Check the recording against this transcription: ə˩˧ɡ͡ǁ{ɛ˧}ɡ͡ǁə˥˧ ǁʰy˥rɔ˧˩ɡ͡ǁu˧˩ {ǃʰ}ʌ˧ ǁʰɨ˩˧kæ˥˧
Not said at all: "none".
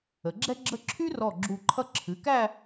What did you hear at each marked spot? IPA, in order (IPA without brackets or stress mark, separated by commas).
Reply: ɛ˥, ǃʰ